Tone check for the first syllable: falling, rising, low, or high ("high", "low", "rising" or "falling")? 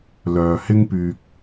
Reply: low